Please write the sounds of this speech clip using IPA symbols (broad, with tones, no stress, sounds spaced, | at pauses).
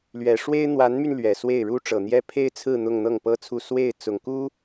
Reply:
l ɥ ɛ˨˩ ʂ w e˥ ɪ̯ n̪ w a˧˥ n m y˧ n l ɥ ɛ˨˩ s w e˥˩ ɪ̯ ɻ u˥ ʈ͡ʂ ɤ˨˩ n̪ j ɛ˥ pʰ e˥ ɪ̯ t͡sʰ ɹ̩˥˧ n̪ ʊ˥˧ ŋ n̪ ɤ˥˩ ŋ p ɤ˥ t͡sʰ u˥˧ s w e˥˩ ɪ̯ t͡s ʊ˨˩ ŋ k u˥